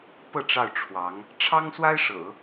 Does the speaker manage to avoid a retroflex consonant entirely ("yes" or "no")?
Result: no